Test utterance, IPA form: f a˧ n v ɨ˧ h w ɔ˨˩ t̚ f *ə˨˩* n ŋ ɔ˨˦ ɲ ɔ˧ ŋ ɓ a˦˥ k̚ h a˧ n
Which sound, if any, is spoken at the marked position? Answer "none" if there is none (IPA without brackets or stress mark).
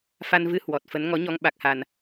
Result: ə˨˦